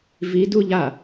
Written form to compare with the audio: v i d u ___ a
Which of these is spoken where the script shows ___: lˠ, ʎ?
ʎ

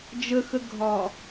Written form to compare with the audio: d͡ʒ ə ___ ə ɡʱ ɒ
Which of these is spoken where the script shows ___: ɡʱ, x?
x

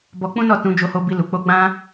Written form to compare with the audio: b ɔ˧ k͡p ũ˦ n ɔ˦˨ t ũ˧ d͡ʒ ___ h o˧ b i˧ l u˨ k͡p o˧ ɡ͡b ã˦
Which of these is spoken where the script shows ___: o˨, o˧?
o˧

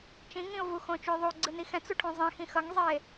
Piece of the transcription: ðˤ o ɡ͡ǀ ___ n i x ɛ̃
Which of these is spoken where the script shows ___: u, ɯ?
ɯ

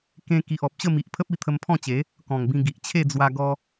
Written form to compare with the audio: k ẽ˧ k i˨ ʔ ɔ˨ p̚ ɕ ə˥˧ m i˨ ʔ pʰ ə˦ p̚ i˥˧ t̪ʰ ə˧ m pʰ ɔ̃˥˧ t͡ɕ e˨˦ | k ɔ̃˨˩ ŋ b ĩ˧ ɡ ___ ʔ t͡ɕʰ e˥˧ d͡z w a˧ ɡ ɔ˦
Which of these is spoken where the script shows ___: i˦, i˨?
i˨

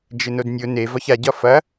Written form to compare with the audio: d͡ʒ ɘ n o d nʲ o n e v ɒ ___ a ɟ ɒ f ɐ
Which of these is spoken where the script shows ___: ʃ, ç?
ç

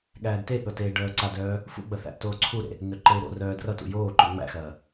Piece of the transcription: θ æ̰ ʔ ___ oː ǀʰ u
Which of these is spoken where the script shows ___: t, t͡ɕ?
t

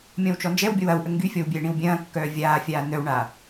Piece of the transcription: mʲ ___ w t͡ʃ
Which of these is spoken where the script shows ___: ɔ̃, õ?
ɔ̃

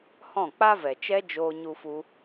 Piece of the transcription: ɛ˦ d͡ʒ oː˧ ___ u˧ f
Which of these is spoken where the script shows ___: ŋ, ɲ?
ɲ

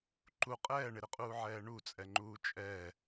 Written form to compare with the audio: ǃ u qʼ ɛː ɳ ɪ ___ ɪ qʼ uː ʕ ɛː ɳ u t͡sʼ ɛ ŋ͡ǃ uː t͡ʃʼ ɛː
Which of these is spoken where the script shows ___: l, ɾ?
ɾ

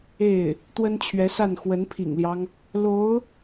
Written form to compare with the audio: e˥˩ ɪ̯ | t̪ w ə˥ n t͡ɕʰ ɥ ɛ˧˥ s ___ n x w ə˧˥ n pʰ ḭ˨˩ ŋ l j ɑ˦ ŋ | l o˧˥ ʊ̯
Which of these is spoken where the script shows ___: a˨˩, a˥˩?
a˥˩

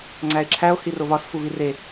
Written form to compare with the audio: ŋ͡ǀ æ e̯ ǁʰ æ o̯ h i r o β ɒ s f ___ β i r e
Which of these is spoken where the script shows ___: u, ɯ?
u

